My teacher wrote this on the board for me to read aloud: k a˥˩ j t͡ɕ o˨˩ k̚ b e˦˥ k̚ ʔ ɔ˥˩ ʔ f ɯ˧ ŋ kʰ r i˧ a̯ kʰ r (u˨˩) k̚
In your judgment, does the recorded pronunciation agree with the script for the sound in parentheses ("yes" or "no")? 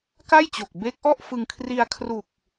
yes